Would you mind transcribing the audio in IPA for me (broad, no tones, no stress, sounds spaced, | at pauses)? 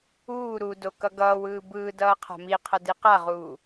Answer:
uː ɾ u d o k ʌ ɡ ʌː w ɯː b ɯː d ʌː qʰ a̤ m i qʰ ʌ d i q a ʁ uː